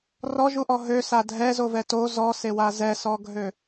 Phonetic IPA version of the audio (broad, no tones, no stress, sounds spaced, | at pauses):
r ɔ ʒ u ʔ ɔ ɦ ø s a dʱ ɛ z o v ɛ t o z ɔ s e w a z ɛ s ɔ ɡʱ ø